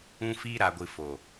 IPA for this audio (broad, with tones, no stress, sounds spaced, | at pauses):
ũ˧ f iː˧ ɾ a˨ ɡʷ ɨ˨ f o˨